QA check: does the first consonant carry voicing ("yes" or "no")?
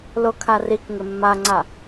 yes